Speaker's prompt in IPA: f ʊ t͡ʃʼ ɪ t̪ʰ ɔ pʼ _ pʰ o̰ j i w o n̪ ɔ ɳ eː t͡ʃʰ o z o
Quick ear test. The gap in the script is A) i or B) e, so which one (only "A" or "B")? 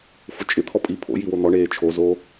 A